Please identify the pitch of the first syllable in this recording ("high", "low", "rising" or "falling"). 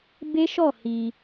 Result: high